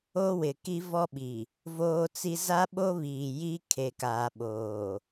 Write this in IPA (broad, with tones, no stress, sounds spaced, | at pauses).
o˦ w ɪ˨ k i˦ v ɔ˦ ɓ i˨ | v oː˦ t͡s i˦ z a˦ ɓ o˦ β iː˨ j i˦ kʰ e˨ k aː˨ ɓ oː˨